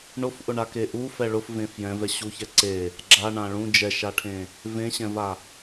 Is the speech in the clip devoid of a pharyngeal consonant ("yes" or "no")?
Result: yes